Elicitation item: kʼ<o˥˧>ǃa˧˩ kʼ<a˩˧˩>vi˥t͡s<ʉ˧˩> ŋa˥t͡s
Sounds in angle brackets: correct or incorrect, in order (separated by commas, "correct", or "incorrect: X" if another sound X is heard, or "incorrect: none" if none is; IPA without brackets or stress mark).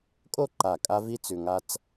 correct, incorrect: a˥, incorrect: ʉ˧